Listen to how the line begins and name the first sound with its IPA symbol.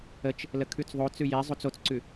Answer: ə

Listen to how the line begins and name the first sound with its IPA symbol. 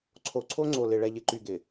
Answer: ǀʰ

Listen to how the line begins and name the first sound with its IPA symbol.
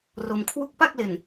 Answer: r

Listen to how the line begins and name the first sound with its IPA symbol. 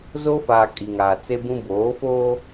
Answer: z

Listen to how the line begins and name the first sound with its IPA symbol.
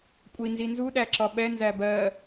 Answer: kʷʼ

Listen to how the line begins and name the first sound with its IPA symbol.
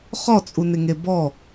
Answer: χ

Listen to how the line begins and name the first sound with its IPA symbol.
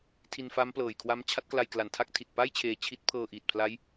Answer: tʰ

